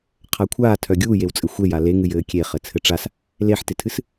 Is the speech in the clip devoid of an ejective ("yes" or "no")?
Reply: no